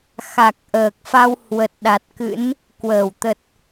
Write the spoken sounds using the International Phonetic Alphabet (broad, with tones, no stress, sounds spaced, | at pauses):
x a˨˩ k̚ ʔ əː˨˩ k̚ f a˧ w h w ə˨˩ t̚ ɗ a˨˩ t̚ k ɨ̰˧˥ n | k w əː˧˩ w t̪ ə˨˩ t̚